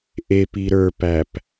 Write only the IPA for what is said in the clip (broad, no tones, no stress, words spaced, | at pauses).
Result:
ʔepi ɾə˞pæp